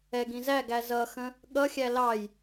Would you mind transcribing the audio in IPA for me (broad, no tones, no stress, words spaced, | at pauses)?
ɛ ɡĩzæɡæ zʌxə̃ | ɠʌxʲæ lɑj